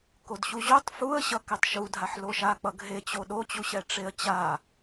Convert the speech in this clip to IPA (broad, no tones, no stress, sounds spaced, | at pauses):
k o d ɕ u ʑ o tˤ f u ə̯ ɕ ʌ k ɛ tˤ ʃ u dʱ a ħ l o ʃ a k͡p ʌ ɡ ɦ e t͡ɕ o ɗ o t͡ɕ u ɕ ɛ ʈ͡ʂ e ə̯ t͡ɕ a